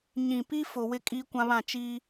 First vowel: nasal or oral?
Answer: nasal